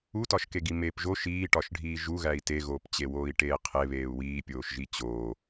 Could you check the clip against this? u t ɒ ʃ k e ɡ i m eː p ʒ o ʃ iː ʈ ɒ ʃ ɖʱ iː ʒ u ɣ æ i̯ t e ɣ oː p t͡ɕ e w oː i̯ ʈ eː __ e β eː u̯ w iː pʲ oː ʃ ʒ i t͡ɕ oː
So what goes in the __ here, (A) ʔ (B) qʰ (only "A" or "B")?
B